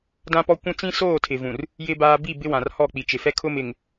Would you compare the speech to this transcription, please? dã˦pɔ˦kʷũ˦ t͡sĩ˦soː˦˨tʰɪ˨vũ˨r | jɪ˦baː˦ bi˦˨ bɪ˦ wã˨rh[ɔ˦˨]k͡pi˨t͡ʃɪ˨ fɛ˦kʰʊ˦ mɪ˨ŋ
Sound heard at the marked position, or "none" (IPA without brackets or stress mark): ɔ˦˨